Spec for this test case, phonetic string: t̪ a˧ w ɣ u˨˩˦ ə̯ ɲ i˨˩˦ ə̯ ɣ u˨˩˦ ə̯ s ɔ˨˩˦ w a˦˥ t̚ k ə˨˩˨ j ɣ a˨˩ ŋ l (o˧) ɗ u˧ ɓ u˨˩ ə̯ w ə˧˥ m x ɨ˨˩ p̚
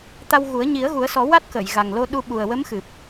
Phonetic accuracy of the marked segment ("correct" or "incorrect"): correct